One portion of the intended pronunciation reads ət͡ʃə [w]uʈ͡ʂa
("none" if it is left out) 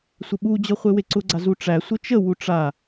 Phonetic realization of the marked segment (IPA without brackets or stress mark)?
w